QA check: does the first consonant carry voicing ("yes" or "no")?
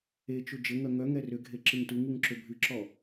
no